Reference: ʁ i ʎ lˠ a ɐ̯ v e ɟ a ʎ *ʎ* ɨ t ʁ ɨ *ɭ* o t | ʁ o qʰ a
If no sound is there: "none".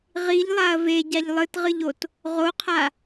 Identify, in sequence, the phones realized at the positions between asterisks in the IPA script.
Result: lˠ, ʎ

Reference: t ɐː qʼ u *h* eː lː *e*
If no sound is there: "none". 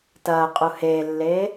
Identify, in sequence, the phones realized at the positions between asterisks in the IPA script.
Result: h, eː

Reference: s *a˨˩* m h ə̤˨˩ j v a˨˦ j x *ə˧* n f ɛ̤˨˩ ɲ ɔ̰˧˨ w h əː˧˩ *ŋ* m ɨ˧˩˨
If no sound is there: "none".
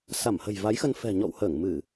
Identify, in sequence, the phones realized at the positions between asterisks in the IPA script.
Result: a˧˩, ə˧, ŋ

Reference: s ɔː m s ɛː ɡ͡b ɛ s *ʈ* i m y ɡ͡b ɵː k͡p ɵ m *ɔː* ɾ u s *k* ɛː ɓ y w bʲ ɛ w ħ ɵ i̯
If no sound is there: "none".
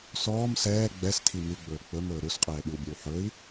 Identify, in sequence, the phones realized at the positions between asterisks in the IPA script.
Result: tʰ, ɵː, qʼ

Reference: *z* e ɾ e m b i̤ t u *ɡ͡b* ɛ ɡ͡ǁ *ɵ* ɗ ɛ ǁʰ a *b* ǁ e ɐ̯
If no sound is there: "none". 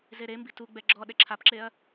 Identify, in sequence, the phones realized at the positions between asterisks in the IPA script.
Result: z, ɡ͡b, ɔ, p

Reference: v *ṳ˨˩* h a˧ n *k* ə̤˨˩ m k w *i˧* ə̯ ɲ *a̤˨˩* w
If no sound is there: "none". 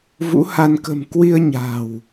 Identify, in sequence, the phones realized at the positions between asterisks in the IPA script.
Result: ṵ˧˥, k, i˧, a̤˨˩

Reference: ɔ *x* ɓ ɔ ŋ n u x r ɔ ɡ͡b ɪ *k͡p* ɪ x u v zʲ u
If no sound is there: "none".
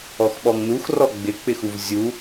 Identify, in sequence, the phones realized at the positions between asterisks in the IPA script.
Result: x, k͡p

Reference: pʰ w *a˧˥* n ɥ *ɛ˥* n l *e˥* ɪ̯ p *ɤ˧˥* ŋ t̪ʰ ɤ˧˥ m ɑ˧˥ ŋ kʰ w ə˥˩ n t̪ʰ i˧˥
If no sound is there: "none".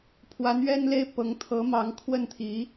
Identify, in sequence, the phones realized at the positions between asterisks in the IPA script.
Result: a˧˥, ɛ˥, e˥, ɤ˧˥

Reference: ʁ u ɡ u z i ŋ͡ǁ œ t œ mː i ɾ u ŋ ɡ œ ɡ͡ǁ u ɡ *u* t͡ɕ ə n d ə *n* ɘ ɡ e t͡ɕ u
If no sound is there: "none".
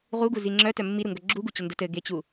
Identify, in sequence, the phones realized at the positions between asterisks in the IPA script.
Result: u, t

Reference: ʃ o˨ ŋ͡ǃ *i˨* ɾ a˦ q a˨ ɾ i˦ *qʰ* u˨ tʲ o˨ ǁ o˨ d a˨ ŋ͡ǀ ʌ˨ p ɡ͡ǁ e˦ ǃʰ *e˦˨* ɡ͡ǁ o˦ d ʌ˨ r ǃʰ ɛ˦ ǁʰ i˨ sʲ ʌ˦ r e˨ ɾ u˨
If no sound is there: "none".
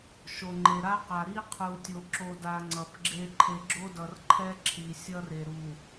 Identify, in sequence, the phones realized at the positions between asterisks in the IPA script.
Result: e˨, qʰ, e˨

